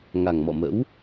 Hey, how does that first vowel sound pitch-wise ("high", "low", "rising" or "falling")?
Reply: low